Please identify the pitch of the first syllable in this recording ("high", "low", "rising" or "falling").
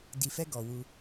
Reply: low